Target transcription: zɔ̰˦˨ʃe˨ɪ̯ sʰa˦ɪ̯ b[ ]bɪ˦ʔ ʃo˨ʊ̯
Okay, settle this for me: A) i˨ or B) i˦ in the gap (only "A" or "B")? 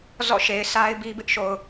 B